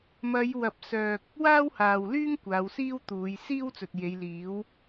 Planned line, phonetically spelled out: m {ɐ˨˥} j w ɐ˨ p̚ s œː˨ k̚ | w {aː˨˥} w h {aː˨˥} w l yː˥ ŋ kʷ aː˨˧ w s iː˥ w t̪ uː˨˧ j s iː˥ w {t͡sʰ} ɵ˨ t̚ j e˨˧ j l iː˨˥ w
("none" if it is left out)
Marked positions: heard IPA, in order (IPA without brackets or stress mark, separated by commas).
ɐ˨˧, aː˥, aː˨, t͡s